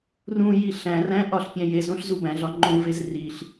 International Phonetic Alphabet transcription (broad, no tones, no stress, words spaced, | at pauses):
rũ jiɬæ̃ræ̃ ʔɒɬpʲæ̃jezõɬ zubæ̃ɮɒ ŋ͡ǃõvez riɬ